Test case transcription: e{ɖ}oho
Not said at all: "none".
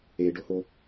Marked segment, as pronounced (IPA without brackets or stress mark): ɖ